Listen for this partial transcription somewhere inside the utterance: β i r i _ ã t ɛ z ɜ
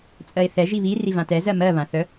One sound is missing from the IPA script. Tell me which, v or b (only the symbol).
v